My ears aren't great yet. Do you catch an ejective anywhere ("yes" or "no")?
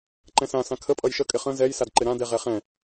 yes